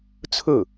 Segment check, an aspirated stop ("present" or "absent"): present